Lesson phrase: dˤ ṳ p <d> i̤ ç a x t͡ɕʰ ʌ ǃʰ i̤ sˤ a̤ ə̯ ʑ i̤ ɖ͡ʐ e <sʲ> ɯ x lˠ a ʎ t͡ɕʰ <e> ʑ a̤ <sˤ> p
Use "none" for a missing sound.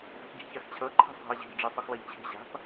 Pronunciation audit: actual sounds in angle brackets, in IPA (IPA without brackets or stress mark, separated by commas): ɟ, sˤ, e̤, none